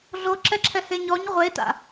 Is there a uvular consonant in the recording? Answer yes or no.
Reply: yes